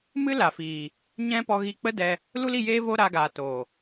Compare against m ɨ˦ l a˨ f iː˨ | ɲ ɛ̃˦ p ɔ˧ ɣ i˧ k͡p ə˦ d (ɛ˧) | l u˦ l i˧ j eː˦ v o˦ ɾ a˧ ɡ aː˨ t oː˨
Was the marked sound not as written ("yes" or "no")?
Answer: no